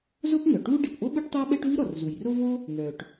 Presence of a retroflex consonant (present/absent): present